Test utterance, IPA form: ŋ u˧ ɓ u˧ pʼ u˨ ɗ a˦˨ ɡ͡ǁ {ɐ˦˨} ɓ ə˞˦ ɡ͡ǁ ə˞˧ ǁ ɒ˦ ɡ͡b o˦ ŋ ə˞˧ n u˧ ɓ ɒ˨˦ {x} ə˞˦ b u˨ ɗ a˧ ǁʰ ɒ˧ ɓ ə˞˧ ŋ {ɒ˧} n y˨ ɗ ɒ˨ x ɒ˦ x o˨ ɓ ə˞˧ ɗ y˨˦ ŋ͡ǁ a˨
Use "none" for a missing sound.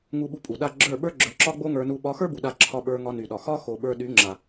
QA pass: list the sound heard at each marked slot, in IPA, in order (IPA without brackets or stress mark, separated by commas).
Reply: ə˞˦˨, x, ɒ˧